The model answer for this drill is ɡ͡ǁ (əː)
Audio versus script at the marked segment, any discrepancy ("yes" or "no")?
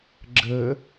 no